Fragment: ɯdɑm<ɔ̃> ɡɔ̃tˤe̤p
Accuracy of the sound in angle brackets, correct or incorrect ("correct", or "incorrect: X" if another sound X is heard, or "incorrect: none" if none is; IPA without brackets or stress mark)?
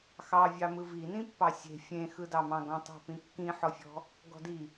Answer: incorrect: ɑ̃